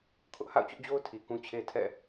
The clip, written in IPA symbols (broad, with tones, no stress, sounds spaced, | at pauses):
kʰ ʊ˦ ʔ h a̰˦˨ ʊ̯ t͡ɕ ʊ˦ ʔ d͡ʑ o˦ ʊ̯ tʰ i˨ k ũ˦ t͡ɕʰ e˦ tʰ ɛ̰˦˨